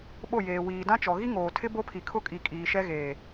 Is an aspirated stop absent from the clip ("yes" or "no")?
no